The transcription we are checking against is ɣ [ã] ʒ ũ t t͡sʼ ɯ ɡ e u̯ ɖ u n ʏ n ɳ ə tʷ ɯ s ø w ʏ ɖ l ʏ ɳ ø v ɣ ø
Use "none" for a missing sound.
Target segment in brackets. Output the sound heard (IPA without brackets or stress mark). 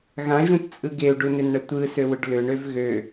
ã